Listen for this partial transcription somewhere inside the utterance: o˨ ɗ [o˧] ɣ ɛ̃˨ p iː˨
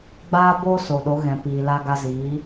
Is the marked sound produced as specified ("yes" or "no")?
no